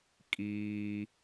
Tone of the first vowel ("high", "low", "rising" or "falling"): high